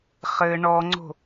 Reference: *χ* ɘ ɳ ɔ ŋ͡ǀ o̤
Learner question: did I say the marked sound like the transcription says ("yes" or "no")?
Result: yes